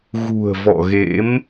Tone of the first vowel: low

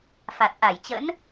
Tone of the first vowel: low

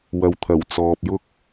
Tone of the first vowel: low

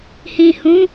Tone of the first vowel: low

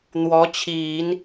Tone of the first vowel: rising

